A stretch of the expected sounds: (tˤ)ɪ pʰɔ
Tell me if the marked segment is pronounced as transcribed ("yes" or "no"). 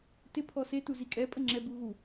no